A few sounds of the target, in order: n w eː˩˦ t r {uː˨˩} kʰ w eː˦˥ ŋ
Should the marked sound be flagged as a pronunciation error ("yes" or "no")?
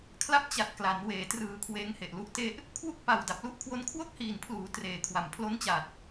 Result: yes